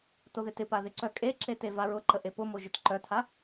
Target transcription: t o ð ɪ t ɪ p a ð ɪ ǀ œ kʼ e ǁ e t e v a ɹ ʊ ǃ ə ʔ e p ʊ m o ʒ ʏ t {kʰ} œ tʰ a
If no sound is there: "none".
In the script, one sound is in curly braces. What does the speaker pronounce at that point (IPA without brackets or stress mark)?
ǃ